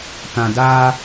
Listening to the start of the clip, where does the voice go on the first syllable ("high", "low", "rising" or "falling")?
low